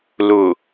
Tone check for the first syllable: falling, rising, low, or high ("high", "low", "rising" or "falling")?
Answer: low